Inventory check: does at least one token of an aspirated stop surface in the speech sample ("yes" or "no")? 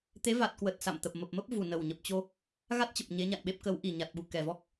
no